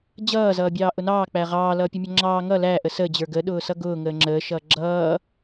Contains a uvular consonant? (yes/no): yes